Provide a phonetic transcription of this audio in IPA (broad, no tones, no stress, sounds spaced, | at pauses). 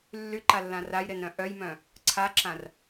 lː y ǃ a lː ã r a j ɾ e n ɾ œ̃ ʔ œ j m œ̃ | ǀʰ a ǁ ã r